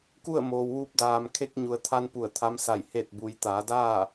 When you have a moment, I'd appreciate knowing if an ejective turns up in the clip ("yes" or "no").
no